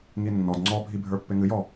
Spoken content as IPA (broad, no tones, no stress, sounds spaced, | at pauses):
ŋ i nː ɔ d ŋ͡ǀ ɔ bʱ i bʱ ə˞ pː e ŋ ɨ j ɔ